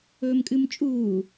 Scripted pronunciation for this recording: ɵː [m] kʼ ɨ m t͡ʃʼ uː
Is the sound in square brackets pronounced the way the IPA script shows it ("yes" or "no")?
yes